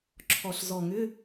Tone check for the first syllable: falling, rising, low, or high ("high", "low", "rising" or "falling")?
low